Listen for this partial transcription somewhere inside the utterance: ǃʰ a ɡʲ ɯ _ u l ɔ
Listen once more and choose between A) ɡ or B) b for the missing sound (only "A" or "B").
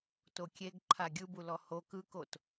B